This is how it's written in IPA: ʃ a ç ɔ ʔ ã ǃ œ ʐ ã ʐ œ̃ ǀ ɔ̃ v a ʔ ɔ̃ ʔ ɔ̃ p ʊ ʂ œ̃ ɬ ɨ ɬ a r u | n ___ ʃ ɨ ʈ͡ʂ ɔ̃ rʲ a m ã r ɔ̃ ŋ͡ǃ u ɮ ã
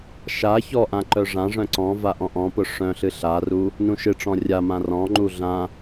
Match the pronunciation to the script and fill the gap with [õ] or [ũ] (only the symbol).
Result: ũ